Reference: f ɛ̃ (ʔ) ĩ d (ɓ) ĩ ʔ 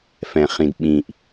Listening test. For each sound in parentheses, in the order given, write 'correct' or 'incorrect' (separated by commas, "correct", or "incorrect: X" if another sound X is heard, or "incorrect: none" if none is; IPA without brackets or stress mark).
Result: incorrect: χ, correct